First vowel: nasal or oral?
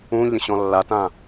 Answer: nasal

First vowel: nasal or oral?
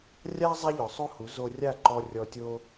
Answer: oral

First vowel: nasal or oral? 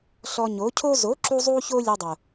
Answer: oral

